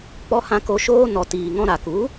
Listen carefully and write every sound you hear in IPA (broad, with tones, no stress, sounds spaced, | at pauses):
k͡p ɔ˧ h ã˧ k o˧ ʃ oː˦ n ɔ˨ t iː˨ ŋ ɔ̃˧ ɾ a˨ k u˨˦